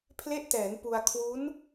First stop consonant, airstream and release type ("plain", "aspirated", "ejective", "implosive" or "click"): aspirated